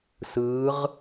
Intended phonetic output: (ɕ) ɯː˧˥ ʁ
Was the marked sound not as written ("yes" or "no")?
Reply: yes